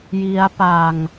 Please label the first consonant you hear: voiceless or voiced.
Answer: voiced